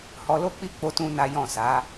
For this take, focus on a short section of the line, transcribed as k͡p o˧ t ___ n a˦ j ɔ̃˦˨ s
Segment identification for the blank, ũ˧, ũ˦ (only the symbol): ũ˦